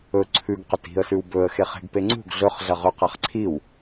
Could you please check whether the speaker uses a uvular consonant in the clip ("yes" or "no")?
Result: yes